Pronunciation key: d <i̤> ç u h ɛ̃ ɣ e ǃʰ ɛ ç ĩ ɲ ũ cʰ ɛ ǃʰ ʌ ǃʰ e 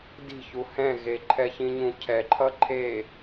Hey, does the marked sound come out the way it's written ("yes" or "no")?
yes